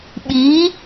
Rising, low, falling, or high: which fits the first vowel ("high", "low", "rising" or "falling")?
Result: rising